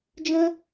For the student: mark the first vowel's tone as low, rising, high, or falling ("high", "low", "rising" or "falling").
high